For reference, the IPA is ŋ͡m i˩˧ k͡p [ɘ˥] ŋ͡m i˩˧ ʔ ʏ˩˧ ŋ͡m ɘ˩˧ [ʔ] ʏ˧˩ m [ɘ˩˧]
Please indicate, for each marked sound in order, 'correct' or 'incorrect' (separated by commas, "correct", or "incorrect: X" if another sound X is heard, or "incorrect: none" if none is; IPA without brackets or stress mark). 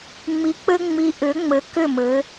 incorrect: ɘ˧, incorrect: k, correct